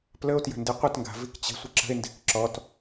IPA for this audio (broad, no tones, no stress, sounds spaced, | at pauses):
p l ə o̯ t j ə̤ n d i qʷ ə t ŋ ɡ a̤ v i k t͡ɕ ə̤ sʷ ə ǁ ə̤ e̯ n d e̤ k ǁ ɔ t